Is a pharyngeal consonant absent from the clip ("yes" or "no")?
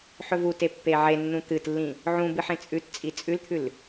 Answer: no